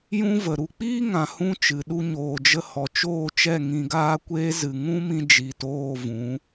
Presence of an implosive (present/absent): present